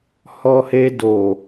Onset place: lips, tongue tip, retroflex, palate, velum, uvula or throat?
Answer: throat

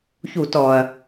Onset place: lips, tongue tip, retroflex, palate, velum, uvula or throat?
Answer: palate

